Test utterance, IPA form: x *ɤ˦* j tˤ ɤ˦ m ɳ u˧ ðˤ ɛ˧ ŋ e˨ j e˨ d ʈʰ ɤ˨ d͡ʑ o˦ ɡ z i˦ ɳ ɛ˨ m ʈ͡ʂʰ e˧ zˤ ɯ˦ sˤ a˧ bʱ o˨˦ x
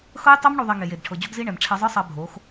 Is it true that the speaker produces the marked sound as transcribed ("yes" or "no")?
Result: yes